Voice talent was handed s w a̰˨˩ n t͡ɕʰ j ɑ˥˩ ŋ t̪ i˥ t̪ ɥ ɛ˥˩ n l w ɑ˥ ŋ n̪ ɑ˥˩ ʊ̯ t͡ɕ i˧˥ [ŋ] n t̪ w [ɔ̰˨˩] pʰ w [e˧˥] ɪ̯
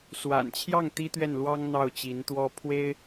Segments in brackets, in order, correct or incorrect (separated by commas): incorrect, incorrect, incorrect